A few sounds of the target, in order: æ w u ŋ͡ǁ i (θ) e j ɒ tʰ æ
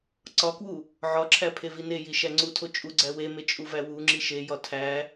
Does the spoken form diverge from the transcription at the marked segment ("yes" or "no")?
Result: yes